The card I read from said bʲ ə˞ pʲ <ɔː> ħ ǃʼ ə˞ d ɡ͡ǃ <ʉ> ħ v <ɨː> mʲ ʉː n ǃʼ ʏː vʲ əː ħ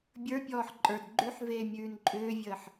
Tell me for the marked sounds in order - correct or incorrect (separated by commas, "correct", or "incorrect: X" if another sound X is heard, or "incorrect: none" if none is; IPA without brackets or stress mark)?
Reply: correct, correct, incorrect: eː